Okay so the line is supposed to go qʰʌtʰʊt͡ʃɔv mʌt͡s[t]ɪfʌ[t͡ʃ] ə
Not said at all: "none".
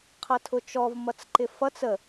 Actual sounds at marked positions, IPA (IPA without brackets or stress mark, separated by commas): ǃ, t͡s